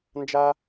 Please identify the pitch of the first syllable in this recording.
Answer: high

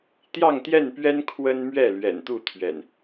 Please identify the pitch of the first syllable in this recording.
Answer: falling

